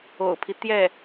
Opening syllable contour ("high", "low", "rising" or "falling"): low